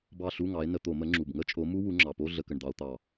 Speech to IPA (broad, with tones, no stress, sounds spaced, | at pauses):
b ɑ˦˨ ɬ u˧˥˧ ŋ ɑ˨˦ e̯ n ə˧˩˧ t̪ o˧˩˧ m ə˨˦ ŋ͡ǁ u˨˩ b ŋ ə˦˥ t͡ʃʼ o˨˦ m u˦˥ w u˨˦ ŋ͡ǁ ɑ˨˩ p o˧˥˧ ɮ ə˧˩˧ k ə˨˩ ɳ d̪ ɑ˧˩˧ o̯ t̪ ɑ˨˩